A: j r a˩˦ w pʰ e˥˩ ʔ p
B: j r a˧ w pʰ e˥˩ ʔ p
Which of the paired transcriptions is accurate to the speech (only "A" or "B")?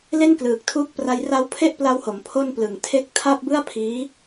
B